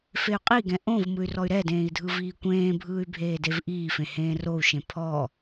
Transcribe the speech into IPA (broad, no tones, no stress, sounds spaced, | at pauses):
f e y̯ qʼ i ɡ ɛ̃ ʔ õ v m ɯ y̯ r ɔ y̯ ɾ ɛ d ẽː i̯ dʱ ɯ v iː kʷ ẽː bʱ ɯː y̯ bʱ eː d e v ʔ iː f ẽ h ẽː r o u̯ ʃ ẽ pʰ ɔ